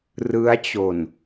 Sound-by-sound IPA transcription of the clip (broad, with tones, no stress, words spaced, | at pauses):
rɯ˦˥a̯t͡ɕo˨˩n